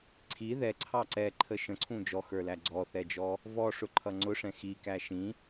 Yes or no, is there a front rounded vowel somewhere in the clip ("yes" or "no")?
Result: no